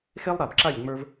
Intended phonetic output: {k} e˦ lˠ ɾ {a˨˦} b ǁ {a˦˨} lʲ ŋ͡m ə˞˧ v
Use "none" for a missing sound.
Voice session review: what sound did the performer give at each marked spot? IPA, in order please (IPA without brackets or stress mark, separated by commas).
x, a˨, a˦˨